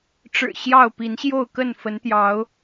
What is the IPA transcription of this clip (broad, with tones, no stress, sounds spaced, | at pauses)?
ʈ͡ʂ ɻ̩˨˩ ɕ j ɑ˥˨ ʊ̯ p i˨˦ n ɕ j o˥˨ ʊ̯ k ə˥˨ n f ə˨˦ n t̪ j ɑ˨˦ ʊ̯